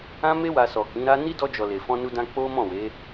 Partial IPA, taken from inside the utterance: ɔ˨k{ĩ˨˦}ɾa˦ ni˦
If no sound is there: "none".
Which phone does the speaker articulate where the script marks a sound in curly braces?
ĩ˨˦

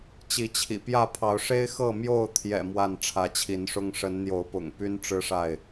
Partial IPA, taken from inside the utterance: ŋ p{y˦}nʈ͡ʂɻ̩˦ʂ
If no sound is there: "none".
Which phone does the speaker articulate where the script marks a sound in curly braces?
y˦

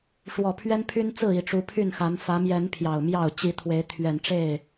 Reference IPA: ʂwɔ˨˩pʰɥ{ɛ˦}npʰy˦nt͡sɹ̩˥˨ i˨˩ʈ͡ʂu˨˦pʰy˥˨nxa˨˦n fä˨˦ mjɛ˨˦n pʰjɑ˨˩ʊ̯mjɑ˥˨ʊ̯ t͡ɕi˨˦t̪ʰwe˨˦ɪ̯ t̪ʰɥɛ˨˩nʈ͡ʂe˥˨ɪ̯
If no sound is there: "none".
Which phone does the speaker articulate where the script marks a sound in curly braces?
ɛ˦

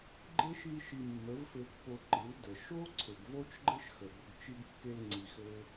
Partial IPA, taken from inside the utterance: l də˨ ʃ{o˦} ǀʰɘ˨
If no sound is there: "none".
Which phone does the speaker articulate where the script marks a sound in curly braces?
o˦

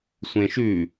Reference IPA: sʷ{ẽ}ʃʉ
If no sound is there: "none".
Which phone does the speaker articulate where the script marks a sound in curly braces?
ẽ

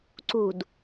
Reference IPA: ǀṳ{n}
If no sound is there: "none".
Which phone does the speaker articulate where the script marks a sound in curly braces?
d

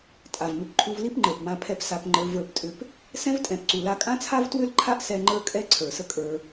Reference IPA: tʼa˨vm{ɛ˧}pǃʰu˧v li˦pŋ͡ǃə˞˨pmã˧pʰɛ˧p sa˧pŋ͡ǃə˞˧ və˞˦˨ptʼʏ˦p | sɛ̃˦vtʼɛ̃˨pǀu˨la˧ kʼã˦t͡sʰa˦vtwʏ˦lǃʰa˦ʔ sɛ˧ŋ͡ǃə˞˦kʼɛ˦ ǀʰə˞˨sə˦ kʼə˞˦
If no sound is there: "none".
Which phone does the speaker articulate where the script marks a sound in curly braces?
ʏ˧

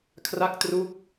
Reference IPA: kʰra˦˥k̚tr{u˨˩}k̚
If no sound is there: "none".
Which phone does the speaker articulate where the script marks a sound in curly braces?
u˦˥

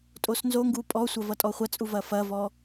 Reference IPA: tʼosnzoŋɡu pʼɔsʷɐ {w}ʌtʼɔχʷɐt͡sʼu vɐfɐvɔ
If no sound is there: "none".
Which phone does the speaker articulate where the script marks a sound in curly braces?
v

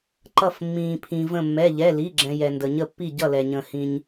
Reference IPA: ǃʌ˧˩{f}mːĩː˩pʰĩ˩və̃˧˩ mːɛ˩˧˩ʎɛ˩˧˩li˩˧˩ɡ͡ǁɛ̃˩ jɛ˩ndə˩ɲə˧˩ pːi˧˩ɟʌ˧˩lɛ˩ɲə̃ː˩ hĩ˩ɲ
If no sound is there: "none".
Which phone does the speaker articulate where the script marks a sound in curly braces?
f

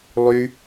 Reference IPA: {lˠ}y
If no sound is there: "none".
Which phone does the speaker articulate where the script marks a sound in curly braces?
lˠ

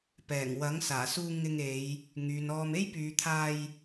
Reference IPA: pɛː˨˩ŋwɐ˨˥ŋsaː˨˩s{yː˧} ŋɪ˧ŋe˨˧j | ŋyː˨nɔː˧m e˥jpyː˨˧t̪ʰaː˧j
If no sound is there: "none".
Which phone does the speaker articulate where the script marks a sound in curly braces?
uː˧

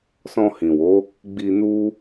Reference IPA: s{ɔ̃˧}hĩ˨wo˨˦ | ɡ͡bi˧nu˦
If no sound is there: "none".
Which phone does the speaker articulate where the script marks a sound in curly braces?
ɔ̃˧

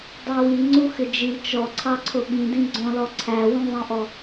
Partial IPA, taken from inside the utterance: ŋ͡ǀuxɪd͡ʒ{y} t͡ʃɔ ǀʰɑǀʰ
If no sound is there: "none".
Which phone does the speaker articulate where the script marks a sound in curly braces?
i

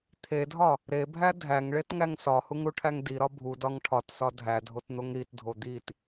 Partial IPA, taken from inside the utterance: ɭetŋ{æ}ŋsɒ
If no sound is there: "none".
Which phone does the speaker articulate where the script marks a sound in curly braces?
æ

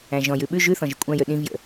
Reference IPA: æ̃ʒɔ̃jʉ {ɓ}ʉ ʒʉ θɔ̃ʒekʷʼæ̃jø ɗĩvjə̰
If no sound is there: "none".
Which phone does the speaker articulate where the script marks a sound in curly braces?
ɓ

